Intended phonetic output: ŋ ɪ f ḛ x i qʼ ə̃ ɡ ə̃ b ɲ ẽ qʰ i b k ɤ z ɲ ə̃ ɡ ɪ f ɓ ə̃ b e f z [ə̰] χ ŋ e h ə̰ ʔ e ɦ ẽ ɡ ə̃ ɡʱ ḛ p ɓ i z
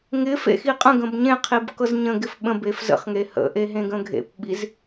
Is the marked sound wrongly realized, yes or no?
no